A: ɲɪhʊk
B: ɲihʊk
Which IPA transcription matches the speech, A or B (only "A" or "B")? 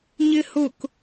A